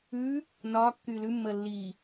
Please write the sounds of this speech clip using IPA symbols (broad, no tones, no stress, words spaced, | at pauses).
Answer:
ʉː | nɒː kːyːlʉmːəː lːiː